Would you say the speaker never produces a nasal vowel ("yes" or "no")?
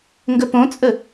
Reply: no